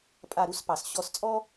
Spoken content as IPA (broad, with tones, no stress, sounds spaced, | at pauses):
pʼ a˧˩ ɾ u˥ s p ɑ˩ s ɕ ɔ˧˩ s t͡sʼ ɔ˥